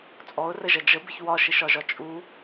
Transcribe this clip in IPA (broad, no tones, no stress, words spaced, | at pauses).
t͡sʼɔʊ̯rəʒɐ d͡ʒəbɪç wɒʃɪʃɒʒɒ t͡ʃʼu